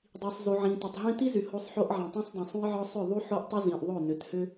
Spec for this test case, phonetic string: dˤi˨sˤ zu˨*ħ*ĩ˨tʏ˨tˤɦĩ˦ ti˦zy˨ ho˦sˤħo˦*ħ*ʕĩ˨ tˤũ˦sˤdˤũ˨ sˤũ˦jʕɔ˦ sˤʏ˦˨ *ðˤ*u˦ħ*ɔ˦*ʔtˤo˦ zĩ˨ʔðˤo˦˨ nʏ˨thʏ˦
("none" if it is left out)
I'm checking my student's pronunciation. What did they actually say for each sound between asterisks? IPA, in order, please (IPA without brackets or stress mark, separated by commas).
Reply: ʕ, ʔ, ðˤ, o˦